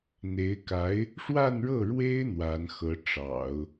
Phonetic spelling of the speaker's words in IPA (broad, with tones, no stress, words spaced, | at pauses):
n̪e˧˥ɪ̯ka˧˥ɪ̯ | ʂwa˥˧nɻɤ˥˩ɻwe˥ɪ̯ n̪wa˧˥nxɤ˧˥ ʈ͡ʂɑ̰˨˩˦ʊ̯